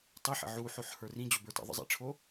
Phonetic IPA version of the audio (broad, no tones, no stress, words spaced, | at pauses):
tˤiħə̰ ʕuħoħ hə˞rĩ d͡ʑobə˞tə̰ ðˤə̰zˤḭʈ͡ʂʰo